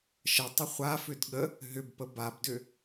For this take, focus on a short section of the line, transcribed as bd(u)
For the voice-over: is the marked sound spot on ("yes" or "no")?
no